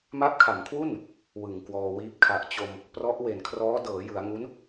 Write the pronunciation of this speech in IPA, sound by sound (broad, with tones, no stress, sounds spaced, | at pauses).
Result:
m a˦˥ p̚ kʰ a˩˦ m kʰ w u˥˩ n | w ɯ˨˩ ŋ k w ɔː˧ w iː˦˥ p̚ kʰ a˨˩ ʔ t͡ɕ o˧ m | p r ɔ˦˥ ʔ w e˨˩ n kʰ r ɔː˦˥ d ɤː˩˦ j ɯ˩˦ a̯ ŋ u˦˥ n